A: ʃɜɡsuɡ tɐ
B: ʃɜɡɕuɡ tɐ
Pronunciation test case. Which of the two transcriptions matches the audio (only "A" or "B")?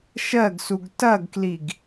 A